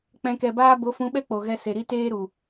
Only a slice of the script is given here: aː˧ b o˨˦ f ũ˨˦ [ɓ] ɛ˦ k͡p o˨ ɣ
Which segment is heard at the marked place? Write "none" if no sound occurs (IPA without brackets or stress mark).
ɓ